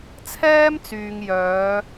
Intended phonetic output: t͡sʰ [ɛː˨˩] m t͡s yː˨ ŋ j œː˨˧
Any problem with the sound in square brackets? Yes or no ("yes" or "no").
yes